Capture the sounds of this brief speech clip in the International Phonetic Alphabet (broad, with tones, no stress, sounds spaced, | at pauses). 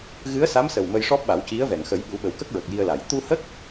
ɣ ɨ˧˥ ə̯ s a˧˥ m s ə˨˩ w m ə˧ j ʂ ɔ˦˥ p̚ ɓ a˨˩˦ w c i˧˥ ə̯ v ɛ˨˩˨ ŋ x ə˨˩˦ j ɓ u˨˩˦ ɓ ə˨˩ w k ə˦˥ k̚ ɹ ə˨˩ k̚ j i˧ ə̯ l a˨˩˨ j t̪ u˧ h ə˦˥ k̚